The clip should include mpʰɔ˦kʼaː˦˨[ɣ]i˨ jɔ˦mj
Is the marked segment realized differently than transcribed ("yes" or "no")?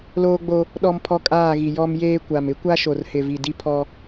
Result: no